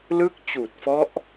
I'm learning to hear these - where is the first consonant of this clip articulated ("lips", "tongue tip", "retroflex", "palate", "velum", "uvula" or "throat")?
tongue tip